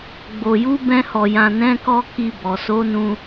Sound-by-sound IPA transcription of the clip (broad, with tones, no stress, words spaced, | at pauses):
ɡ͡bo˨ju˨˦bɛ̃˧hɔ˨ jã˨nɛ̃˨˦kɔ˧ ki˧bɔ˨ so˨˦nũ˧